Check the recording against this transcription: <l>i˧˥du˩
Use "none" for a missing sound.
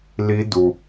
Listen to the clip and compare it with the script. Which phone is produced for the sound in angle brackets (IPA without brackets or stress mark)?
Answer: l